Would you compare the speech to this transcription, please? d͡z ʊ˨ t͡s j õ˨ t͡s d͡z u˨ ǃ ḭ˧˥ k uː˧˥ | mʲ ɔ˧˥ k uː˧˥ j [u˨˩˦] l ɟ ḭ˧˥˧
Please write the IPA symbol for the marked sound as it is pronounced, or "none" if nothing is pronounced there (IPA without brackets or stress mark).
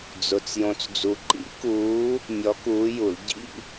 u˨˩˦